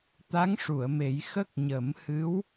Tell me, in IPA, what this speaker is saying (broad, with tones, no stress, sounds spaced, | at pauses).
t̪ a˧˥ ŋ ʂ u˨˩˨ ə̯ m e˨˩˦ j x ə˦˥ k̚ ɲ ə˨˩˦ m h ɨ˧˥ w